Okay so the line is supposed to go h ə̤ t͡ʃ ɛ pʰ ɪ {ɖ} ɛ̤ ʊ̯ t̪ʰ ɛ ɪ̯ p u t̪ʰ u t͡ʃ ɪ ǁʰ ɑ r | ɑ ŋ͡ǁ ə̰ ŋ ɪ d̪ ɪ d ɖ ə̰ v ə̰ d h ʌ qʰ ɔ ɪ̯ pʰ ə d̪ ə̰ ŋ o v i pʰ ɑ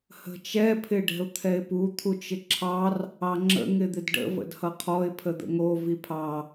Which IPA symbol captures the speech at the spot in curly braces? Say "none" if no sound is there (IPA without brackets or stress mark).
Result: ɖ